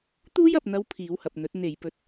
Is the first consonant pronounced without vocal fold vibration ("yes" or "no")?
yes